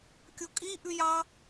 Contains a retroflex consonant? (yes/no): no